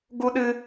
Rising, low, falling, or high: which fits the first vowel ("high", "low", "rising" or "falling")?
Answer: high